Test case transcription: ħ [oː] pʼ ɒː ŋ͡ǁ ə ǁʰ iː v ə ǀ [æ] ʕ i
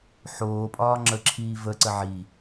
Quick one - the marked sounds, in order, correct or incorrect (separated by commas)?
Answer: correct, incorrect